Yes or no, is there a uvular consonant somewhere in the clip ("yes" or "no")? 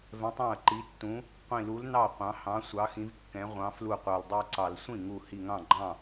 yes